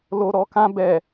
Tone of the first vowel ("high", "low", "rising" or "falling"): low